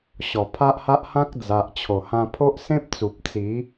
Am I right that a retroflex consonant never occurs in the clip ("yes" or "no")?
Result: yes